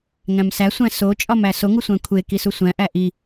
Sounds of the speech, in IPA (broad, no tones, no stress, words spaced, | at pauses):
ŋæ̃msæ sʷæ̃so t͡ʃʼɒmæso ŋusʷæ̃kʷʰe kisusʷæ̃ ʔæʔi